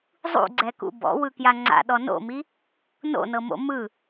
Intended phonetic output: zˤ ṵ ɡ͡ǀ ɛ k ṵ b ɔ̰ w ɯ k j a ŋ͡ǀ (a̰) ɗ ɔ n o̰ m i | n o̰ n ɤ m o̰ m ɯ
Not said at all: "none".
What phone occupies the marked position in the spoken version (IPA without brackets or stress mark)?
a̰